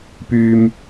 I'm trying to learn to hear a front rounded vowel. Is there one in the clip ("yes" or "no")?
yes